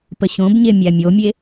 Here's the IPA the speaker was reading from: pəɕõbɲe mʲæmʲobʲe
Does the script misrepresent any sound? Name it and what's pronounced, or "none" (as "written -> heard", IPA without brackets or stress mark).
bʲ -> mʲ